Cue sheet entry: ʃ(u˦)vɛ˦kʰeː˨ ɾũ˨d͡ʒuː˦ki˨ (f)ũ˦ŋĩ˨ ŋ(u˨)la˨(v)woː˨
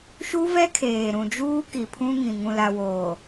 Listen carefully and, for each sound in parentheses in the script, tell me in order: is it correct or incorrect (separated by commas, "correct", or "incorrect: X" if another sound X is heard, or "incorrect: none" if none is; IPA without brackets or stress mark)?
correct, incorrect: pʰ, incorrect: ũ˨, incorrect: none